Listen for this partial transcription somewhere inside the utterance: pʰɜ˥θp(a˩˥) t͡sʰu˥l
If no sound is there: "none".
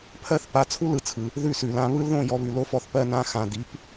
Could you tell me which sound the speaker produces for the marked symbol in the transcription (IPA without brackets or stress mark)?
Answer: a˩˥